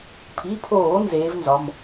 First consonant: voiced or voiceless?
voiceless